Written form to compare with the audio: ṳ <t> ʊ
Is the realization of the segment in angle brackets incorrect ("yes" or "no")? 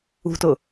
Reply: no